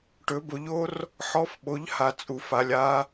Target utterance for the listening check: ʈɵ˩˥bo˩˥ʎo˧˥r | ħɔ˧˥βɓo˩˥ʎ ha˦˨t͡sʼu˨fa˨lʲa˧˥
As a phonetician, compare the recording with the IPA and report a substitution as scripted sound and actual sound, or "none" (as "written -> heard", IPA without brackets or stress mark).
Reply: β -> f